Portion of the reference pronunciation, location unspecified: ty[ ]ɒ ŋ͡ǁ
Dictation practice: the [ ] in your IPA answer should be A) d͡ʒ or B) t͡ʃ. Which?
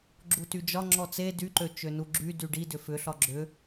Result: A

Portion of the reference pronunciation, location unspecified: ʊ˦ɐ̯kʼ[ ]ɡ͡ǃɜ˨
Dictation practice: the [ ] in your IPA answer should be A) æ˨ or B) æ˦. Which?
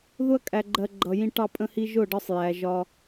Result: A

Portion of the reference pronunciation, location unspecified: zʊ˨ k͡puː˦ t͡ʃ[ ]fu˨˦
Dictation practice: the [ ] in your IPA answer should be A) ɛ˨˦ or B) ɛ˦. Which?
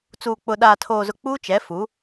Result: A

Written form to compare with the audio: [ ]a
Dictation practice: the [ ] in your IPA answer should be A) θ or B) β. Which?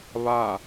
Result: B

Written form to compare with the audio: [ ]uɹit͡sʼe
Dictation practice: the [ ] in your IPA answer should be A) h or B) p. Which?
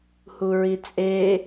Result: A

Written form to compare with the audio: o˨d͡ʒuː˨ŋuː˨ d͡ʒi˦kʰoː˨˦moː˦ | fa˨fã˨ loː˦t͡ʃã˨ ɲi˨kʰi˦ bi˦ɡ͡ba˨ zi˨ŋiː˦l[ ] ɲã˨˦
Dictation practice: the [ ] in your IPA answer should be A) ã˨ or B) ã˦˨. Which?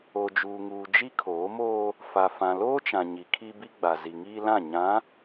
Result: B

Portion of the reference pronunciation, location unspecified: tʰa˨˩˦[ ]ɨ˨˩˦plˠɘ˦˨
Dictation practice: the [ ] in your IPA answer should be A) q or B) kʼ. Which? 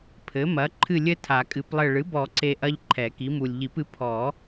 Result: B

